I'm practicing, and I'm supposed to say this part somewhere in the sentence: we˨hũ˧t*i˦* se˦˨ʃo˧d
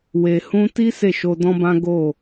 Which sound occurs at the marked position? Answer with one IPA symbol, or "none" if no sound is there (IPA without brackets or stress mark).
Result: i˦